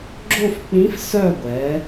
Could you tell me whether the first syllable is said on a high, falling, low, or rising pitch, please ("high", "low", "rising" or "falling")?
falling